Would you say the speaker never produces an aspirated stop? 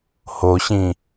yes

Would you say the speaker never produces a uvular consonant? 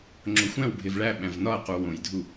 no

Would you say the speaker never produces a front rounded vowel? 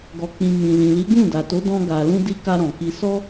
yes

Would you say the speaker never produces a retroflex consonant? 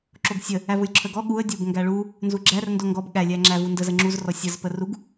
no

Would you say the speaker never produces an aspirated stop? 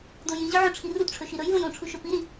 no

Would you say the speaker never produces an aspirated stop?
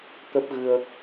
yes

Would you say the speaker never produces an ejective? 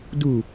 yes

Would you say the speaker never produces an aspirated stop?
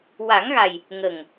yes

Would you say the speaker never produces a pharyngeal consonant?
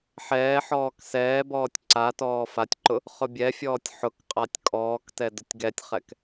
no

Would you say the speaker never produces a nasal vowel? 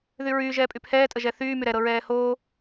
yes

